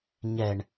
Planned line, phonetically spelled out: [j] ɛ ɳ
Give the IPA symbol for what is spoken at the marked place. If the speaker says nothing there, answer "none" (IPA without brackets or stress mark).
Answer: ɲ